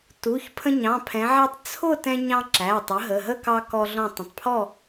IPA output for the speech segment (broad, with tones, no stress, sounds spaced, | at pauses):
t u˩˧˩ ç pʰ ə̃˧ ɲ ɑ̃˩˧˩ pʰ ɛ̃˩˧ ʕ æ˧ tˤ t͡sʰ ʊ˥˨ t ɛ̃˧ ɲ ɑ̃˧ ǁ æ˩˧˩ tˤ ə˩˥ ɦ ə˩˧˩ ɦ ə˥˨ k ɑ˧ k ɔ˧ ɮ ɔ̃˧˩ tˤ ə̃˩˧˩ tˤ pʰ ɔ˥˨